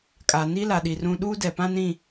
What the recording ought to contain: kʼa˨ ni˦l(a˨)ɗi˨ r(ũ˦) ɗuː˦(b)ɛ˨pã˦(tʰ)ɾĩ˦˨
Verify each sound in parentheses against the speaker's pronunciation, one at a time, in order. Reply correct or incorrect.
correct, correct, incorrect: d, incorrect: n

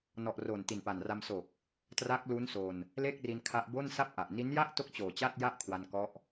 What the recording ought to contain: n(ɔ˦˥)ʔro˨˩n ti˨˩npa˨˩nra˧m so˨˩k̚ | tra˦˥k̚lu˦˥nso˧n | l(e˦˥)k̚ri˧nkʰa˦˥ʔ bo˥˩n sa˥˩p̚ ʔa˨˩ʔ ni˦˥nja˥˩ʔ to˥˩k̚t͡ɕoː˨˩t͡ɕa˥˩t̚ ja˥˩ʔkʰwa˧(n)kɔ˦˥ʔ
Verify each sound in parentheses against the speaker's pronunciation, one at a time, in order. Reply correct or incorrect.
incorrect: ɔ˨˩, incorrect: e˥˩, correct

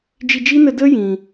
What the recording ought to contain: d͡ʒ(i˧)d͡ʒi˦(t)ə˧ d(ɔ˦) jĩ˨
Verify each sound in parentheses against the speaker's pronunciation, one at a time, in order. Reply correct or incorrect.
correct, incorrect: n, incorrect: ə˦

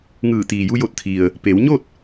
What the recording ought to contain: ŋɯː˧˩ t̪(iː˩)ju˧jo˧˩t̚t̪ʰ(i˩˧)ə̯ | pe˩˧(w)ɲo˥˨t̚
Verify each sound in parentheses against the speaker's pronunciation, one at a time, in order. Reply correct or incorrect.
correct, incorrect: i˩, correct

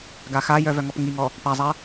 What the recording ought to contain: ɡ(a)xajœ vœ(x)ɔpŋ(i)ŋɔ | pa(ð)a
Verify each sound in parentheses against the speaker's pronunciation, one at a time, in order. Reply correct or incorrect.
correct, incorrect: ŋ, correct, incorrect: zˤ

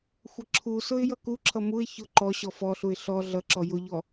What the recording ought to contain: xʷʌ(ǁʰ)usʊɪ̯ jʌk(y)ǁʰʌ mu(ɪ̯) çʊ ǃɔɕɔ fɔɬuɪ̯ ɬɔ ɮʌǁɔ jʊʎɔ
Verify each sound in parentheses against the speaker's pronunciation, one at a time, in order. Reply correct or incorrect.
correct, incorrect: u, correct

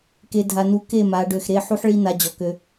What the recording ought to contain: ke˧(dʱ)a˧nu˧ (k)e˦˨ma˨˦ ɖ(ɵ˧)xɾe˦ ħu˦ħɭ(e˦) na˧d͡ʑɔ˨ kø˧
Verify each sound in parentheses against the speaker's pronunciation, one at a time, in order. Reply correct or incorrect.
correct, correct, incorrect: ø˧, incorrect: i˦

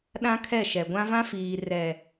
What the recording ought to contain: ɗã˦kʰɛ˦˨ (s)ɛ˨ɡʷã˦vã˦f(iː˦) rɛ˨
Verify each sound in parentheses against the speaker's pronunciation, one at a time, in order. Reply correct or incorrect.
incorrect: ʃ, incorrect: iː˨

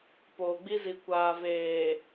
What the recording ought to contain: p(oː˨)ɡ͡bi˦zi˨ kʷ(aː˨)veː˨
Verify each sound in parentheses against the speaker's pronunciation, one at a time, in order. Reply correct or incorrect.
correct, correct

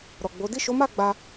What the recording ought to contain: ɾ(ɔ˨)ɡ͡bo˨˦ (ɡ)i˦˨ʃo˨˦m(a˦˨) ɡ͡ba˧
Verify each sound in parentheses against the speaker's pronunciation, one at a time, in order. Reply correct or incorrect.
correct, incorrect: d, correct

